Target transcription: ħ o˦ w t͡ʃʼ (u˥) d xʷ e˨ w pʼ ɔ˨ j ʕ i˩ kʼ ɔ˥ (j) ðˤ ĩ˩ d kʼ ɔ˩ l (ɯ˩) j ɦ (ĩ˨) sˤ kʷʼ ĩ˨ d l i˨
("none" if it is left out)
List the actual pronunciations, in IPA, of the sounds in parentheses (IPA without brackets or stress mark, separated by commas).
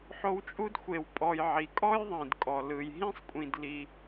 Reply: u˥, j, ɯ˩, ĩ˥